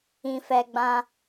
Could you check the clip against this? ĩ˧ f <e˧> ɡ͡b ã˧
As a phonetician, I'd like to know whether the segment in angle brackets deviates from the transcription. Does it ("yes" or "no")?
yes